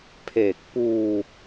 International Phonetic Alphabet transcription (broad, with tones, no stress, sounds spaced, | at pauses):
pʰ e˨˩ k̚ p uː˧